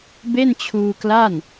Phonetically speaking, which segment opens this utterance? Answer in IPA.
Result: b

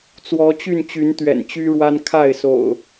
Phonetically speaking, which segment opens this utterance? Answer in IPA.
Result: t͡s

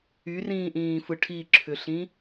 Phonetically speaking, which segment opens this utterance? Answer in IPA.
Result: y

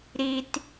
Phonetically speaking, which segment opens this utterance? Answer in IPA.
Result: ɾ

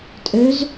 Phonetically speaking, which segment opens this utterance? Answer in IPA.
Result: tʼ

